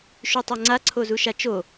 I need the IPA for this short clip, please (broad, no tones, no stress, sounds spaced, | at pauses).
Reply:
ʃ y tˤ a ŋ͡ǀ a ǀʰ o z u ʃ a t͡ʃ o